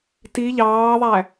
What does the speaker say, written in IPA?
t i ʎ ɑː ðˤ æ

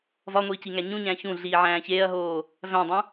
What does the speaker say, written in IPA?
v ɒ ŋʷ iː c i ŋ æ ɲ ũ ɲ æ̃ ç ũ ɮ iː ʕ æ̃ː ç eː ɐ̯ ɦ oː | v æ̃ dˤ ũ

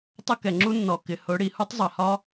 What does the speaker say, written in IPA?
tˤ ə˦ k ɛ˨ ŋ͡ǁ u˦ nː ɔ˨ k ɪ˨ h ʊ˨˦ ɽ i˨ h u˦ tˤ zˤ ʌ˨ h ɒ˦

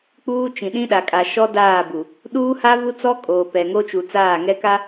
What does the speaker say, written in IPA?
k͡p uː˦ t͡ʃ ĩ˨ ɗ ĩ˦ ɗ a˨ kʼ a˨ ʃ ɔ˦ d aː˦˨ b u˨ | ɗ uː˦ h a˦ β u˦ t͡s ɔ˦ kʼ oː˨ p ɛ˨ ŋ o˦ t͡ʃ u˨ t͡s aː˦˨ ŋ ɛ˦ k a˦

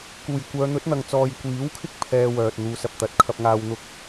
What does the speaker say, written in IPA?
k uː˨˩ j kʷ œː˨˧ n̪ ɵ˨˥ t̚ n̪ ɐ˨ ŋ t͡s ɔː˨ j kʷ iː˨˥ w kʰ ɪ˥ k̚ pʰ ɛː˧ w œː˨ t̚ n̪ uː˨˧ s ɐ˨ p̚ t̪ ɐ˨˥ t̚ kʰ ɐ˧ p̚ ŋ aː˧ w n̪ ʊ˥ k̚

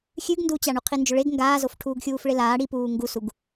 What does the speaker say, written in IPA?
xʲ ʉ ɡ n d uː t͡ɕ a ɳ u qʰ i n d͡ʒ ɵ ɭ e ɡ ŋ ɡ aː z o f ʈʰ uː ɡ xʲ uː f ɭ e l aː ɽ i p uː ŋ ɡ u s u ɡ

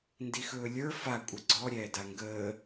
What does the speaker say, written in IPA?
n d i x ɵː lʲ ə˞ f a kʷʼ ə ɡ͡ǀ ɔ ɾʲ ɛː d a ŋ ɡ əː

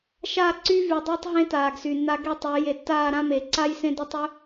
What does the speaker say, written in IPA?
ʃ aː˦˨ ǀ y˦ v y˨ dˤ e˦ tˤ ɦ ẽ˦ t aː˨ ɡ s y˨ nː a˦ ɡ e˦ tˤ e˨˦ j e˨ tː aː˦˨ ɾ ã˦ m e˨ ǀ a˦ j s ẽ˦ d e˦ tˤ y˦

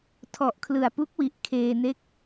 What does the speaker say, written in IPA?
tʰ ɔ˨˩ ʔ kʰ l ɯ˨˩ a̯ p u˦˥ k̚ w i˨˩ ʔ kʰ eː˧ n e˦˥ k̚

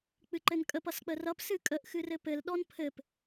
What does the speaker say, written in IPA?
k͡p ɨ ǃ ɘ n kʼ ə p ʌ s k͡p ə r ʌ p s ɨ kʼ ə ʔ x ɨ r ɘ p ɘ l ɗ ɔ n pʰ ɘ p

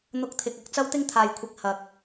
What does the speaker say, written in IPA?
n̪ ʊ˧ k̚ t̪ʰ ɪ˨ k̚ ɐ˨ k̚ t͡s ɐ˥ w t̪ ɪ˥ ŋ t̪ʰ aː˨ j kʷʰ ɪ˨˥ k̚ h ɐ˨ k̚

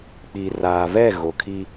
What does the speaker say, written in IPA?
k͡p iː˨ r aː˨ v ɛ˦˨ ɣ o˨ kʰ i˦

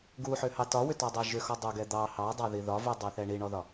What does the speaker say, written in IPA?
ɡ u ħ ʏ h ɑ t ɒ w ʏ t ɔ dˤ ɛ ʒ ʏ x ɔ dˤ u ɡ ɛ d̪ ɑ h ɑ dˤ ɑ ð i ð ɒ v u dˤ o θ ɛ ɳ i ɳ ɔ ð ɒ

